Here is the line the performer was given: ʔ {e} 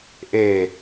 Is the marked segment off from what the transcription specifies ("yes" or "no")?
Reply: no